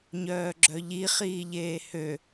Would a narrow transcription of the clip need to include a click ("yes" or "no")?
yes